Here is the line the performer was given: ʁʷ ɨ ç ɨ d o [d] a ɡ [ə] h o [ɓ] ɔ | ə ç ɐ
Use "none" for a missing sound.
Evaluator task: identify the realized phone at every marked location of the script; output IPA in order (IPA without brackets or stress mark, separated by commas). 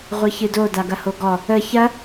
d, ɐ, ɡ